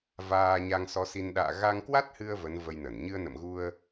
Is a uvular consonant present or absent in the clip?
absent